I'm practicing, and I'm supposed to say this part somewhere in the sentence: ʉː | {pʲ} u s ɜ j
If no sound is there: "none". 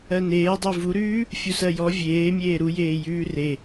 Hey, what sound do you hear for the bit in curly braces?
fʲ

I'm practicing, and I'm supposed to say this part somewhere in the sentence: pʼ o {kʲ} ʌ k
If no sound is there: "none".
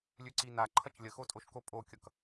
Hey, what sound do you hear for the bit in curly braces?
kʲ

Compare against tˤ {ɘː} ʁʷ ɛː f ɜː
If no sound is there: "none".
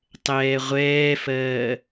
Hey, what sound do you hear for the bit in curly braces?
ɛː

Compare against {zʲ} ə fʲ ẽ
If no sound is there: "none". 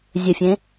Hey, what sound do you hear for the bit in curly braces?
zʲ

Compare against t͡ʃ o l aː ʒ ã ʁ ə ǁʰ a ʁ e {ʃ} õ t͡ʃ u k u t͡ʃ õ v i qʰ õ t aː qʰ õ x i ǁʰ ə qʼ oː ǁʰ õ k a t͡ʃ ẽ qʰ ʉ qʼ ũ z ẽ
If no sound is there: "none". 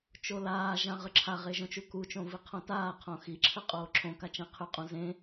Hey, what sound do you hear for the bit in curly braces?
ʒ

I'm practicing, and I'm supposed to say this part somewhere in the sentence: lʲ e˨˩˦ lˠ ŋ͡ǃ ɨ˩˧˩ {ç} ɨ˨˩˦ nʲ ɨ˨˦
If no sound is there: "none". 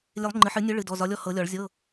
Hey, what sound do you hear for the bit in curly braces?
ħ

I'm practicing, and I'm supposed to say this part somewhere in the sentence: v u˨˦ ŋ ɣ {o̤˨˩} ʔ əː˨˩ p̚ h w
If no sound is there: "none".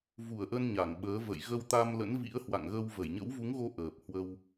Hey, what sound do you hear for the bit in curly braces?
o˧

